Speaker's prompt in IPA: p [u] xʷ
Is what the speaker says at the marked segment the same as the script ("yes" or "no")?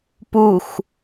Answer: yes